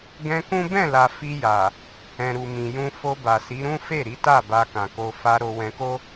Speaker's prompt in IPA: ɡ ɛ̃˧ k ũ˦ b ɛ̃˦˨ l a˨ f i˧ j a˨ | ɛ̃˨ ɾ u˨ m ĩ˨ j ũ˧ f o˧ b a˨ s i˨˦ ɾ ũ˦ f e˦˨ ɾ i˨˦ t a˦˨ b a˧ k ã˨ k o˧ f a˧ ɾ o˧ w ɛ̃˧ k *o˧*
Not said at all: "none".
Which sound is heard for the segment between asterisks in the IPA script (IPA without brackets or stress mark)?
o˦